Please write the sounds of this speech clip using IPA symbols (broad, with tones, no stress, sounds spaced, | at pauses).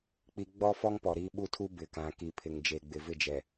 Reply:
k͡p i˦ ɡ͡b ɔ˦ f ɔ˦ ŋ p ɔ˨ ɾ i˦ ɓ u˦ tʰ u˦ b ɪ˨ k ã˨ k i˨ pʰ ɪ˨ ŋ d͡ʒ e˨ ɡ͡b ɪ˨ v ɪ˦˨ d͡ʒ ɛ˨